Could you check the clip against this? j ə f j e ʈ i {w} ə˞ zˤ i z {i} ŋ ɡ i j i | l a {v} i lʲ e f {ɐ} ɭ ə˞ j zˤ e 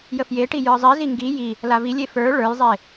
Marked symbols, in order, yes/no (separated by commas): no, yes, yes, no